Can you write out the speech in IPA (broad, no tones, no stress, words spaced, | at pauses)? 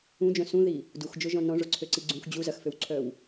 ũd͡ʒœ̃ sũði | duxd͡ʒʊʒɔ̃ nɔ̃ʐʊǀʰøǀi ɡ͡ǀũx d͡ʑu zɐxføwǀʰœw